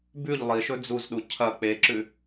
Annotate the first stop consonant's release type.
plain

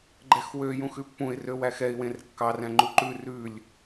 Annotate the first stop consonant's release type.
click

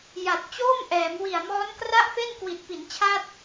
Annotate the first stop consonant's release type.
plain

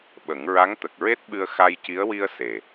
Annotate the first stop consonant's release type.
implosive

